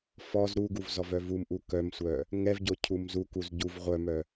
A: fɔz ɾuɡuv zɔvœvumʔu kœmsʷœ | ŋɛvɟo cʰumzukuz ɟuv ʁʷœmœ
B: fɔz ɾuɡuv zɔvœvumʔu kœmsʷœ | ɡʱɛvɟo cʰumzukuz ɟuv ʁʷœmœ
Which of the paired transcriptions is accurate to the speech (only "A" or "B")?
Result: A